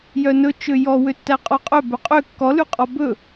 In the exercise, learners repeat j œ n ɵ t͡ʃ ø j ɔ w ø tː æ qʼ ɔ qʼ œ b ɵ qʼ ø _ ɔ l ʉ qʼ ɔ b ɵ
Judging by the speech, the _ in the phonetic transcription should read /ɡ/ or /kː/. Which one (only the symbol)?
kː